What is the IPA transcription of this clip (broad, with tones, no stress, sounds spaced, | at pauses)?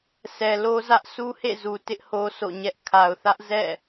sʰ ɛ˨ l o˦ z ä˦ ʔ s u˦ h ḛ˦˨ z u˨ t ɪ˦ ʔ h o˦ sʰ o̰˦˨ ɲ ɛ˦ ʔ kʰ a˨ ʊ̯ θ ä˦ ʔ z ɛ̰˦˨